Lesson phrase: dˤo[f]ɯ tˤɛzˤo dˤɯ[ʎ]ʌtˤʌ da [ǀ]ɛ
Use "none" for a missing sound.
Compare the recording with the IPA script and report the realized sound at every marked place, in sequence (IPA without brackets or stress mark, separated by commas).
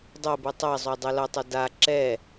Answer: b, l, ǁ